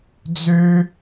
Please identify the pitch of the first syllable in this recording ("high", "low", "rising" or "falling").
high